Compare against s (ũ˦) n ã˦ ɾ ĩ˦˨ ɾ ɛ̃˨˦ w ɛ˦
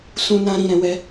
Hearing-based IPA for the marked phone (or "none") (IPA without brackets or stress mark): ũ˦